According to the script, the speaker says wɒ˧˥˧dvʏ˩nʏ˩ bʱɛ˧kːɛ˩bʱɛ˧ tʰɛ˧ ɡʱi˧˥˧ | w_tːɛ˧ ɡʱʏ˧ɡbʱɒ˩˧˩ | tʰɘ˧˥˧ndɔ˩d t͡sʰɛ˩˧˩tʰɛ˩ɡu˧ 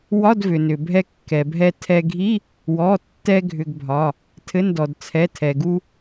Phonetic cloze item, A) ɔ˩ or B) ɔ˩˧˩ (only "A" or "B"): B